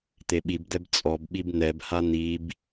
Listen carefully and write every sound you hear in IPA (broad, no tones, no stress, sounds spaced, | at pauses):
t̪ e ɓ i b d̪ ɛ b t͡sʼ ɔ b ɓ i b n̪ ɛ b h a n̪ i b